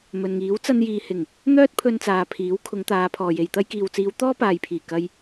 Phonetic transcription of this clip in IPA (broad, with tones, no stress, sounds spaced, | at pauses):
m ɵ˨ n ŋ iː˨˥ w t͡s ɐ˧ n j iː˨ h ɪ˨˩ ŋ | n̪ œː˥ t̚ pʰ ɵ˧ n t͡s aː˨ pʰ iː˨˥ w kʰ ʊ˨˧ ŋ t̪ aː˨˧ pʰ ɔː˨ j e˨ j t̪ ɐ˥ j k iː˨ w t͡s iː˨˧ w t̪ ɔː˥ p aː˨ j pʰ iː˨˩ k ɐ˧ j